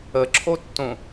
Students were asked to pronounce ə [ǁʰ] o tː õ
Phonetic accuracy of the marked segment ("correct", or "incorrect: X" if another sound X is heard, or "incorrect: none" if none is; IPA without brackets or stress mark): correct